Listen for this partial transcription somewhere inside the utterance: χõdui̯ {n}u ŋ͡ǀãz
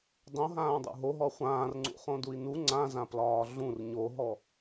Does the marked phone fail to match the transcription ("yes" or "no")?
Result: no